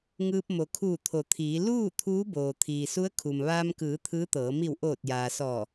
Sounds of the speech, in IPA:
ŋ ɯː˧ p̚ m o˩ kʰ uː˧˩ t̪ʰ o˩˧ t̪ʰ iː˩˧ l uː˥˨ t̪ʰ uː˧˥ b oː˩ t̪ʰ iː˩ s u˧˥ ə̯ kʰ u˩ m ʋ aː˧ m k ɯː˩˧ t̪ʰ ɯː˧˥ t̪ ɤː˩˧ m i˧˩ w ʔ oː˧˩ t̚ j aː˩ s ɔː˧˩

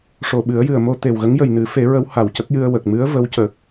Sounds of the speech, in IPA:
ʂ o˨˩ ɓ ɨ˨˩˦ ə̯ j ɨ˨˩ ə̯ m o˧ t̪ e˨˩ w ɣ ə˧˥ ŋ j ə˨˩ j n ɨ˨˩˦ f e˨˩˦ ɹ ə˧˥ w h a˨˩ w c ə˦˥ k̚ j ɨ˧ ə̯ w ə˨˩ k̚ m ɨ˧˥ ə̯ v ə˧˥ w c ə˨˩ k̚

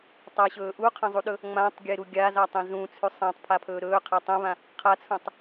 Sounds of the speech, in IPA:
tˤ a ɕ ɵː ʔ u qʰ ɐ̃ zˤ u ɗ ɵ | ŋ͡m ã tˤ ɡʲ e ɾ u ɡʲ a z a tˤ ẽ z ũ t͡sʰ ʉ sˤ ã tˤ pʰ a pʰ ɵː ɾ ɵː qʰ a tˤ ẽ β ã | qʰ a t͡sʰ ũ tˤ

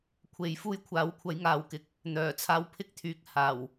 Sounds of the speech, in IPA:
kʷʰ e˨˧ j f uː˥ j kʷʰ aː˨˥ w kʷʰ ɐ˨˥ j ŋ aː˨ w k ɪ˨ k̚ | n̪ œː˨˩ t͡sʰ aː˧ w pʰ ɪ˥ k̚ t̪ʰ yː˨˥ k̚ h aː˨˩ w

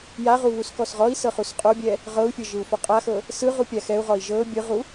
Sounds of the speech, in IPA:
j a ʁ u β u s k ɔ s ʁ ɔ i̯ s ɤ χ u s qʼ o bʲ ɛ | ʁ ɤ u̯ fʲ ɤ ʒ ɯ u̯ f ɔ qʼ a x ɤ | s ɯ ʁ u pʲ a x ɛ u̯ ʁ ɔ i̯ ʒ ɤ bʲ ɯ ʁ u

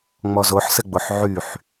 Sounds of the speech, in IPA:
ŋ͡m ɔ z o ħ s ɘ ɡ͡b o ħ ʕ y ħ

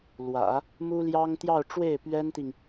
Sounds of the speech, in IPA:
l w ä̰˨˩˦ | m u˥ l j ɑ˥ ŋ t̪ j ɑ˥˧ ʊ̯ ʈ͡ʂ w e˥˩ ɪ̯ p ɥ ɛ˥ n t̪ i˨ ŋ

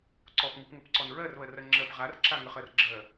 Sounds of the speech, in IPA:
ǀ ɔ p ŋ u p ŋ ɘ p ǀ ɔ n ɹ ɜ r β ɜ r ɜ ŋ͡ǁ ɜ p ʁ a r ǁ a ŋ ə χ ɜ r ɡ͡ǁ ɜ

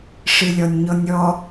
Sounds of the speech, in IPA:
ʂ ɨ lʲ ɔ nʲ ɲ ɔ nʲ ɔ

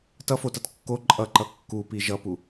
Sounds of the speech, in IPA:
t ʌ f o t ʌ t kː o ǃʼ ʌ ǃ ʌ kː u p i ʒ ʌ p u

